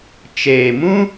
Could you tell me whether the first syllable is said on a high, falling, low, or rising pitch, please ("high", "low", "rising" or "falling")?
low